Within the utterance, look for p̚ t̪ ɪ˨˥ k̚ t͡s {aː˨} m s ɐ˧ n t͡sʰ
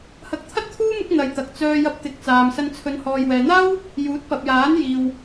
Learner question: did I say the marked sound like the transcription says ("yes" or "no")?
yes